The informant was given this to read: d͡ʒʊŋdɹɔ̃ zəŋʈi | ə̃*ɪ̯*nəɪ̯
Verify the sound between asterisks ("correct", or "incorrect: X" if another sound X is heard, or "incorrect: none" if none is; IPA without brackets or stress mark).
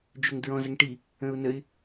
incorrect: ʊ̯